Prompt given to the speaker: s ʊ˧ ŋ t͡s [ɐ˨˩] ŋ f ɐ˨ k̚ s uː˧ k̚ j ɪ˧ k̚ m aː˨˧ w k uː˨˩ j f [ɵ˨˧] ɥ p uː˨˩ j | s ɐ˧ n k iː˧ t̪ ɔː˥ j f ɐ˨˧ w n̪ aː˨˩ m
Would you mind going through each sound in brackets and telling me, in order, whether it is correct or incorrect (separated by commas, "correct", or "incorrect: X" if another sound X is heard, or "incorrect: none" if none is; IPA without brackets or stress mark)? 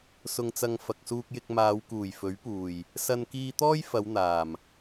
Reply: incorrect: ɐ˧, incorrect: ɵ˨˥